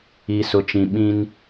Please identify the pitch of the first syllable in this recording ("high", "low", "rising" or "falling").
low